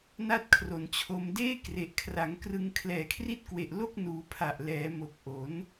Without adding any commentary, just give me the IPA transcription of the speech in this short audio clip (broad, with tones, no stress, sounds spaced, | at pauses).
n a˥˩ t̚ kʰ r o˨˩ n t͡ɕʰ o˧ m d eː˥˩ k r e˨˩ ʔ kʰ r a˩˦ ŋ k r ɯ˧ ŋ kʰ l ɛː˨˩ kʰ r i˥˩ t̚ k w e˨˩ ʔ l o˥˩ k̚ n uː˩˦ pʰ a˨˩ ʔ l ɛː˩˦ m o˨˩ k̚ ʔ o˩˦ n